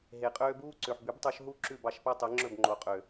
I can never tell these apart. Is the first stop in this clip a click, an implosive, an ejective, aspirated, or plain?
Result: ejective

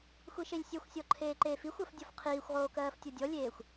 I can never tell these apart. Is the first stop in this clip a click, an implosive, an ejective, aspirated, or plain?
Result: click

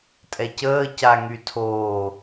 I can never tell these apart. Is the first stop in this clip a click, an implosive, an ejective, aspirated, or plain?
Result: ejective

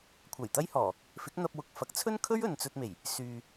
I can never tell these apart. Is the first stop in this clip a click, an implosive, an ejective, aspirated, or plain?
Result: aspirated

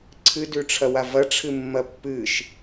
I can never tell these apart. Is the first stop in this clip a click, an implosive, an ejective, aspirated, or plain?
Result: click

